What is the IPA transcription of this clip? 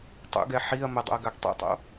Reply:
tˤṵɡɛ ħiɐ̯ mədˤo̰ɐ̯ ɡaɡtˤḭtˤo̰

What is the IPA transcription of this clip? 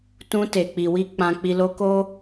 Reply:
tũ˧ te˨ k͡pi˨wi˧ k͡pã˧k͡pi˧ lo˧ko˦

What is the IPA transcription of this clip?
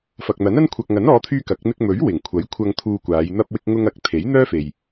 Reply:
fɐ˨k̚n̪ɐ˨˥nɐ˥n kʷʰɐ˨k̚ŋɐ˨˥nɔː˨˧t̪ʰyː˧ kɐ˨˥k̚ n̪ɪ˧k̚mɵ˨˥ɥ wɪ˨˩ŋkʷʰɐ˨˥jkʷʰɐ˧ŋ t̪ʰuː˧kʷaː˨˧j n̪ɐ˧p̚wɪ˧k̚ŋʊ˧ŋ ɐ˨˥k̚ t̪ʰe˨˥jn̪œː˥fe˨j

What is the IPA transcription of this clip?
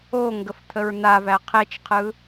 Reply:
o ŋɡəft̪ʰəɹn̪avæ qʰet͡ʃqʰɯ

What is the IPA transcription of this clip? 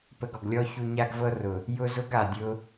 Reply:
pə˧ɡɔ˨ɡlʲɔ˦ çu˧ɲa˦ɡvɤ˦ rʊ˨ | jʊ˦ zʊ˦ɡa˨dʲʊ˧

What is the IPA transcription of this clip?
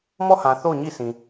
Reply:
mɔ˦˨hã˨ θo˦˨ʊ̯ɲi˦˨ sʰĩ˨

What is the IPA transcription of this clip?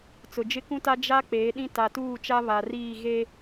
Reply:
t͡sʊ˨d͡ʒɪ˦kũ˦ta˦ d͡ʒa˦ k͡peː˨˦ɗĩ˦ ta˨tuː˦˨t͡ʃa˦ βa˨riː˦˨ ɣe˦

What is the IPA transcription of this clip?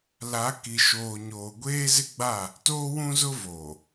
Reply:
la˨˦ ki˨ʃoː˨ɲoː˨ ɡʷeː˦zɪ˦ɡ͡ba˦˨ | toː˦wũ˦zʊ˦voː˨

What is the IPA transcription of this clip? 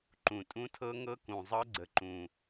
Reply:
ǃũ˨˩tʼũ˦˥tʰɤ˦˥ŋɤ˦˥ kũ˨˩zˤɤ˦˥ɡ͡ǀə˨˩ǃũ˨˩

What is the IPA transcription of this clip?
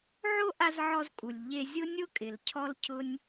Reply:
ʕo˥ʔa˧zʕɔ˧zkʼu˩lʲ ʎe˧zʲʊ˥ nʲʊ˥kʼɪ˩l cʰɔ˥lcʰʊ˥nʲ

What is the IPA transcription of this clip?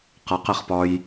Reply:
qʌqɪχpɒj

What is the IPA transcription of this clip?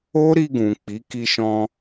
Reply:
o˦ɾi˧ ɡũ˨k͡pi˨˦ ki˧ʃɔ̃˧

